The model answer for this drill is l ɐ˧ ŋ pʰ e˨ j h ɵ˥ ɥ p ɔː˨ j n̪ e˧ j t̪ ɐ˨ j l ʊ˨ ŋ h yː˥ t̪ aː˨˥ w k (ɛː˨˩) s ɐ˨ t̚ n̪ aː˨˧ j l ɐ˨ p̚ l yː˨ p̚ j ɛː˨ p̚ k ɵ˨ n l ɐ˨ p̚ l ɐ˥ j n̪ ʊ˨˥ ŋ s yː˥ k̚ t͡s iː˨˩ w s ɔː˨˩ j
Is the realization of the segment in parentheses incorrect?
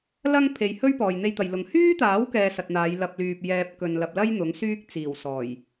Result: yes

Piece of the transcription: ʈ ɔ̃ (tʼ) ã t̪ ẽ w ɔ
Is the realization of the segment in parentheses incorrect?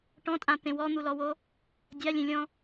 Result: no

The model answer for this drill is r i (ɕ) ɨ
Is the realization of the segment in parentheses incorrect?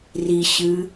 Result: no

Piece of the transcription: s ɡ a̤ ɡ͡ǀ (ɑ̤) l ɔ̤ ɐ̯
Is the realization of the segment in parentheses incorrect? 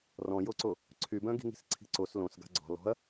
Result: yes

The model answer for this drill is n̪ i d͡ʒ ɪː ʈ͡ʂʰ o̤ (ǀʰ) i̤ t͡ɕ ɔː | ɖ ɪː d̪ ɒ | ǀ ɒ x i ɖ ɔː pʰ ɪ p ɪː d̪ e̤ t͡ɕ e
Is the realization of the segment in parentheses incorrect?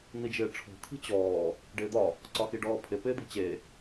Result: yes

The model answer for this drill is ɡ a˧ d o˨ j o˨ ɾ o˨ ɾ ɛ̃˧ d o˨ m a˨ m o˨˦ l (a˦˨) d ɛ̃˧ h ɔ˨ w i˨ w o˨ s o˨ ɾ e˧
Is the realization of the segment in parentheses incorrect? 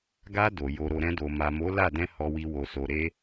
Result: no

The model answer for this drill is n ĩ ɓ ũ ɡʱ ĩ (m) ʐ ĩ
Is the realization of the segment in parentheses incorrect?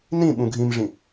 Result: no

